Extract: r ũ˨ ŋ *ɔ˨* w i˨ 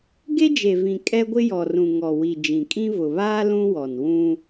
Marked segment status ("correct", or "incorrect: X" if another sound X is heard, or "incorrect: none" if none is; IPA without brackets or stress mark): correct